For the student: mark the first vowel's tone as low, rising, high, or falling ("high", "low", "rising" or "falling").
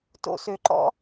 high